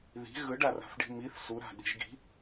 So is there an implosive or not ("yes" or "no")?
yes